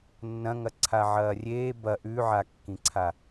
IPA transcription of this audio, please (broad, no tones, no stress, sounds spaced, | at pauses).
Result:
nː ɐ̃ ŋ ɐ ǀʰ a ʕ ɐː rʲ eː b ɐ ʔ ʉ ʕ a kː ĩ ǀʰ a